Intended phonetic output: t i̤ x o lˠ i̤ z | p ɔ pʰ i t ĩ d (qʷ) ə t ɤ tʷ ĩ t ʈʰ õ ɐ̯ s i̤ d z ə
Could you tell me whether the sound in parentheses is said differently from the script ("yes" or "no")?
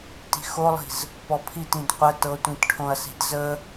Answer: no